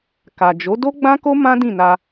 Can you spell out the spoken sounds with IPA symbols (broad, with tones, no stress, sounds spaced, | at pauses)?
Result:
k a˨ d͡ʒ o˨˦ d o˦ ɡ͡b ã˦ k o˦ m ã˦ d ĩ˦˨ n a˧